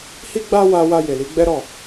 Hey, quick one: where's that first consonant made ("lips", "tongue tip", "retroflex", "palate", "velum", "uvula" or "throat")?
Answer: throat